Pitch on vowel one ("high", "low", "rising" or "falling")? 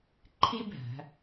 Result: high